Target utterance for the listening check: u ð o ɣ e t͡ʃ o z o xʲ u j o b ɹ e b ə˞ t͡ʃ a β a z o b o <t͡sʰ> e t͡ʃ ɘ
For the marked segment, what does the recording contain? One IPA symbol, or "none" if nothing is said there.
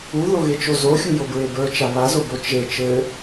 t͡ʃ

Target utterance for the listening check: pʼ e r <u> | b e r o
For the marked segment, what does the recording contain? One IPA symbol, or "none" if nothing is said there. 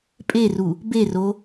u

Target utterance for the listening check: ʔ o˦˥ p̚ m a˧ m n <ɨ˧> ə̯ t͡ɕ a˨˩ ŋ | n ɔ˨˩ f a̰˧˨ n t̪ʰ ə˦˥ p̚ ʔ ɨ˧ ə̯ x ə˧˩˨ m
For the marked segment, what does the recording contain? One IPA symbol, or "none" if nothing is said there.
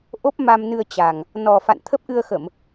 ɨ˧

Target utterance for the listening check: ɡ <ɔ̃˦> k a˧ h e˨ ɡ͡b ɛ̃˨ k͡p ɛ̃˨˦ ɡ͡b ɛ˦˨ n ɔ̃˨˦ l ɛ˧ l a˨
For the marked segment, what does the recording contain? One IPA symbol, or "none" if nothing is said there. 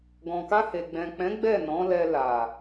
ɔ̃˨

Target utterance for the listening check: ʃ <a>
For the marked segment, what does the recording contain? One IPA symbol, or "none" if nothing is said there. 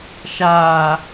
aː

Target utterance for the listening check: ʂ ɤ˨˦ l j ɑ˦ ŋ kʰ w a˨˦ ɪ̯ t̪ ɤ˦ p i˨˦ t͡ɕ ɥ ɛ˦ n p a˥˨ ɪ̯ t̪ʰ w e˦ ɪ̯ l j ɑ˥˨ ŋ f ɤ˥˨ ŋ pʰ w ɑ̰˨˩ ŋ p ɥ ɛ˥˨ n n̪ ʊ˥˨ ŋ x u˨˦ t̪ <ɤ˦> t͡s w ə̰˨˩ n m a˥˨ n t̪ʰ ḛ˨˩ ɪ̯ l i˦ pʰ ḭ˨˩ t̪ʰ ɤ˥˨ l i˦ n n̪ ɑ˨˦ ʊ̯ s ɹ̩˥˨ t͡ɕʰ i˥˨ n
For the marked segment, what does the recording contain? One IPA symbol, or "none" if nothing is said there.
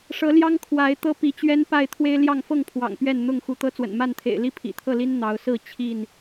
ɤ˦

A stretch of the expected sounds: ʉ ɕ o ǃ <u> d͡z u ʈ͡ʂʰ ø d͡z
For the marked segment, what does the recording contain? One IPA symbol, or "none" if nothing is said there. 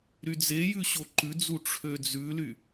ʉ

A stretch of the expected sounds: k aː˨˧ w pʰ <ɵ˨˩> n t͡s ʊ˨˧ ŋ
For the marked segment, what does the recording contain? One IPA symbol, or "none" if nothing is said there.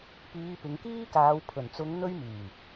ɵ˨˩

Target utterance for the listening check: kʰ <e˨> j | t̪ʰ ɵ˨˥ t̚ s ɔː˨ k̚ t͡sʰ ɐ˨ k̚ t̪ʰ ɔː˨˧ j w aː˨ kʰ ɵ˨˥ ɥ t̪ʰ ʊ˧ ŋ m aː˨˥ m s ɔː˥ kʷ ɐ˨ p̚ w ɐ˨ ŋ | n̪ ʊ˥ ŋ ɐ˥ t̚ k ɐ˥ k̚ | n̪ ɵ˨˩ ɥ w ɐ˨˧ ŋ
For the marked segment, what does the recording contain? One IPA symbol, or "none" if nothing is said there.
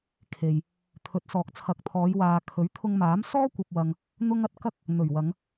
e˨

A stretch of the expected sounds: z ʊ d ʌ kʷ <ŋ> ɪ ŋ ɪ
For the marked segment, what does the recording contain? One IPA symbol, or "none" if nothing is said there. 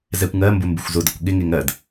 ɠ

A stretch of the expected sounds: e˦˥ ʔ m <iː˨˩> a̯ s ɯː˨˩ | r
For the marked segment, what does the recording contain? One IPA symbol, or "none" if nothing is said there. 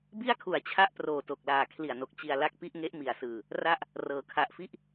i˨˩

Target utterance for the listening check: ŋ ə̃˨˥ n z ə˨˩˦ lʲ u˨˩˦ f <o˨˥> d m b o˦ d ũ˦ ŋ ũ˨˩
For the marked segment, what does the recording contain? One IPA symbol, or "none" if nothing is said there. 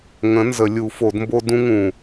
o˨˩˦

